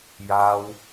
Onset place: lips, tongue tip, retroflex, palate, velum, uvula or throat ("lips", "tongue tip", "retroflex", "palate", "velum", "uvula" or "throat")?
palate